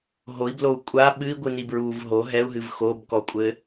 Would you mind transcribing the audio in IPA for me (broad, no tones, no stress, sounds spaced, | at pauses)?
ɦ o i̯ b l o u̯ kʷʼ a ɓ ɨ i̯ ɡʷ ɨ n i b ɹ uː v ɦ o ɦ ɛ u̯ ɦ ɨ v x o b k ɔ kʷʼ ɘ